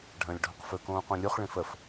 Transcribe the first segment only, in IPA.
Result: ɖʱ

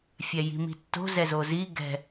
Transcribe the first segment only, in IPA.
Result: fʲ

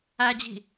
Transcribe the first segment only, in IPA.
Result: æ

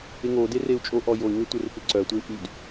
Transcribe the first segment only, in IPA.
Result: ɪ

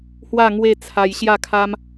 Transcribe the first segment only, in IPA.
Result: h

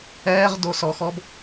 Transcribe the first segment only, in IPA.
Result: ɛː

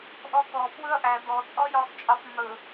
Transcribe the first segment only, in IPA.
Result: ʔ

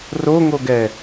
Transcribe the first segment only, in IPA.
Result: r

